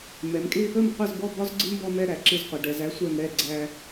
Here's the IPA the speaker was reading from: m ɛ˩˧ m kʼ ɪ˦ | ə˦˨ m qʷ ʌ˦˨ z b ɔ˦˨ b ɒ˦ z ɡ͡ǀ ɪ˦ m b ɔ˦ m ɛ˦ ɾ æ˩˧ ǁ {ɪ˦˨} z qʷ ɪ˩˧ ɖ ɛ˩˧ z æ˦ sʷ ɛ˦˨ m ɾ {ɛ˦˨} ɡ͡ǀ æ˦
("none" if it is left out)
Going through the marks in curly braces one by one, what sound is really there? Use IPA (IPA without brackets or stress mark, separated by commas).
ɪ˦˨, ɛ˦˨